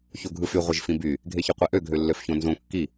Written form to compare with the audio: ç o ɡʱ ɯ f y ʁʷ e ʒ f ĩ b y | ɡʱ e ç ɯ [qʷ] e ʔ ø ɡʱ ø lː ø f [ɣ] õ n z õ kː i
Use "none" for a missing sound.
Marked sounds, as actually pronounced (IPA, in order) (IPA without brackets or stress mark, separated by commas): qʷ, ç